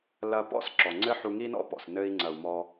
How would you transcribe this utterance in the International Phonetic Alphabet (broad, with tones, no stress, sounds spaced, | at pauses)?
l ɐ˧ p ɔ̰˦ s ǁ ɔ˨ ŋ͡ǀ ɘ˦ ħ u˧ ŋ i˦ n ɔ̰˦ p ɔ̰˨ s n ɘ˧ i̯ ŋ͡ǀ ɐ˨ u̯ m ɔ˧